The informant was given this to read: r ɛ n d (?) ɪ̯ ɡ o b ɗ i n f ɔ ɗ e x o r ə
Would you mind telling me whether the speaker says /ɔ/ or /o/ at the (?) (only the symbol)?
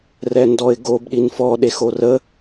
ɔ